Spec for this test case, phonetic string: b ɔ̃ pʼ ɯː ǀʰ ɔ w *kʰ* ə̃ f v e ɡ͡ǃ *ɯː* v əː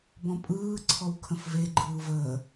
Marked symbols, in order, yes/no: yes, yes

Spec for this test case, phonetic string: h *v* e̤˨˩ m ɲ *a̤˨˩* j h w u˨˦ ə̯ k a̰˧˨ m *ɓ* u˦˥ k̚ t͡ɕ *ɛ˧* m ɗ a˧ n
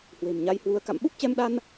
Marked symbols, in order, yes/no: no, no, yes, yes

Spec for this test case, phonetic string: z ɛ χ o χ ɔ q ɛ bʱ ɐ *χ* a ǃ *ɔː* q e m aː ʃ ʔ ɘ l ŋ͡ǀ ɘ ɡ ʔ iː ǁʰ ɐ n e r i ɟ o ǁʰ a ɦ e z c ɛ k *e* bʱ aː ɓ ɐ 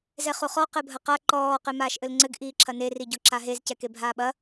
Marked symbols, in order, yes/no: no, yes, yes

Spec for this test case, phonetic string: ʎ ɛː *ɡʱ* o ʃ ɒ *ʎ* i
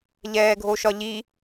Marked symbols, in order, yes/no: yes, yes

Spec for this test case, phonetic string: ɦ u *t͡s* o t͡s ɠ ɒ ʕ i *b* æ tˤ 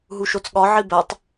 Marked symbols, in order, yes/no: no, yes

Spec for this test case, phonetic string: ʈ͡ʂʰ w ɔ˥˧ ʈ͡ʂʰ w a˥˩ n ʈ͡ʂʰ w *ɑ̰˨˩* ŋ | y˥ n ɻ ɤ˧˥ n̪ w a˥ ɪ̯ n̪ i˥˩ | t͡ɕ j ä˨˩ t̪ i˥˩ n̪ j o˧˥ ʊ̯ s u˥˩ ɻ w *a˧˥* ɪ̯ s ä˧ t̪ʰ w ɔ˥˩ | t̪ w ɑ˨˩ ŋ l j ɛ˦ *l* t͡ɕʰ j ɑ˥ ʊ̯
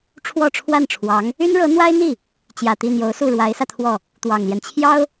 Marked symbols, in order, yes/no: no, yes, no

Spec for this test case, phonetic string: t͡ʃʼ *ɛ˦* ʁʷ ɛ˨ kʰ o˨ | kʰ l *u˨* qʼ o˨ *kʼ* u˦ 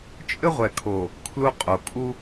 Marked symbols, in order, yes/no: no, no, yes

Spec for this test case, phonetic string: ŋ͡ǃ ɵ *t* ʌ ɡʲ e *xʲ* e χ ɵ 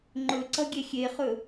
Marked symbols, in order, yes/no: no, yes

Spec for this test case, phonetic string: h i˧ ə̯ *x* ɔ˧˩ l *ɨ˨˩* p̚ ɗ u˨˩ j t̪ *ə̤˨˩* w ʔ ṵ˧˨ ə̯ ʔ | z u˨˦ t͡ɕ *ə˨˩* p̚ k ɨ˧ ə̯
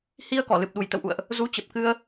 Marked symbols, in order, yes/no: no, yes, no, yes

